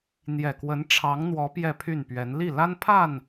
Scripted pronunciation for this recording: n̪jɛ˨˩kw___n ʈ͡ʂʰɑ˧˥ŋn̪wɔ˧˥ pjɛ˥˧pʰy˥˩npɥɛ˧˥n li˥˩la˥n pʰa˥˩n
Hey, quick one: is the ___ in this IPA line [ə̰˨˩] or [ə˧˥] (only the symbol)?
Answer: ə˧˥